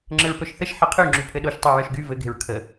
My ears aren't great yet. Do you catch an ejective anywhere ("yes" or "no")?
no